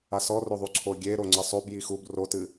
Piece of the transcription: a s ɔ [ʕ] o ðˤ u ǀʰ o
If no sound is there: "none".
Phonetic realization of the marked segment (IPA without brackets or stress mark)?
r